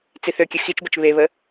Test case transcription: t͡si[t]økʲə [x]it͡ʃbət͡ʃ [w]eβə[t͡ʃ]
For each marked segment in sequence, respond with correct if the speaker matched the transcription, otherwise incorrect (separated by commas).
incorrect, correct, incorrect, incorrect